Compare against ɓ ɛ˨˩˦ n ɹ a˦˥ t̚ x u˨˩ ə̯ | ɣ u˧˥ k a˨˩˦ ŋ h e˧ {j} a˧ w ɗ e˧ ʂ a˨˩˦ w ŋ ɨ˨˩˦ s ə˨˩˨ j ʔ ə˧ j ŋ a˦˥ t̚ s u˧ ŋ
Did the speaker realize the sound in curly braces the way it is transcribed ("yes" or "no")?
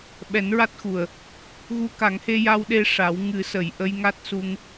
yes